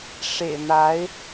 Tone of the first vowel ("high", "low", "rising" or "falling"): low